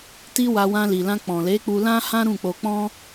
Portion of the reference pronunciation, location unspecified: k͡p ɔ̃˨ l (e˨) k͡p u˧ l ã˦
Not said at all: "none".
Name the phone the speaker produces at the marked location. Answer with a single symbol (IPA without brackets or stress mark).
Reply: e˨˦